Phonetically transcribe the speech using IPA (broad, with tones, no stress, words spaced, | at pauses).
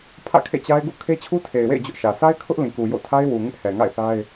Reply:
pʰä̰˦˨kʰḛ˦˨t͡ɕa˦ɪ̯ ɡṵ˦˨ kʰe˦t͡ɕʰu˦tʰe˨ɪ̯wḛ˦˨ɪ̯ d͡ʑʊ˦ʔʃä˨ sʰa˦ɪ̯kʰʊ˦ʔ lĩ˨ku˨jo̰˦˨tʰa˦ɪ̯ wu˨ ŋɪ˦ʔhɛ˨ŋa̰˦˨ɪ̯ θa˦ɪ̯